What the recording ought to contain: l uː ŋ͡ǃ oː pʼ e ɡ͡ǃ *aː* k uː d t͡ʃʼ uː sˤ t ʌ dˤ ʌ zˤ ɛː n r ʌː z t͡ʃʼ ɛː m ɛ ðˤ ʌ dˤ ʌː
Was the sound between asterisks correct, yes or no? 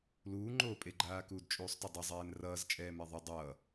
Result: yes